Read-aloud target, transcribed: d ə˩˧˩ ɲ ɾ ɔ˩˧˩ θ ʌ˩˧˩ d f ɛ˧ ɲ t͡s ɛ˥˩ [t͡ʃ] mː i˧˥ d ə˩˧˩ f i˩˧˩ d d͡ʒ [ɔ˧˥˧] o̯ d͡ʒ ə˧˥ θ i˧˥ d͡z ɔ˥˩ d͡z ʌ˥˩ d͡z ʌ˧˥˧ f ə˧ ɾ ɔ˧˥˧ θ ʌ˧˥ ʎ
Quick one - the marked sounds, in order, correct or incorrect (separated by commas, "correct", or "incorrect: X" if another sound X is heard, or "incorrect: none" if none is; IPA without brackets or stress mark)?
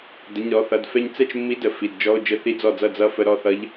correct, correct